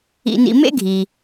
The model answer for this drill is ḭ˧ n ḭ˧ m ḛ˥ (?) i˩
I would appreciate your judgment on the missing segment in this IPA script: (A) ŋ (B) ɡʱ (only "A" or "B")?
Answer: B